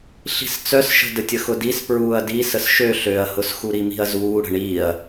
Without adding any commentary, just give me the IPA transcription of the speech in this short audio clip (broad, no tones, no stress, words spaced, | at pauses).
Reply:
ɬi̤st͡sœsʃə̤ dətʲəxʊdis pɹuːɐ̯di səsʃø ɬøɐ̯hʊs xuɾimi̤ɐ̯zuː ɽə̤ɳiːɐ̯